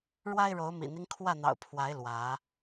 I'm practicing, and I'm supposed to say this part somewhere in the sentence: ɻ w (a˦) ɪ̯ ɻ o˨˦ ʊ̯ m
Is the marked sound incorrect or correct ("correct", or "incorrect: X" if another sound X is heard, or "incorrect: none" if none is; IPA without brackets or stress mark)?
correct